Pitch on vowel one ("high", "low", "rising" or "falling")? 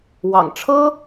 low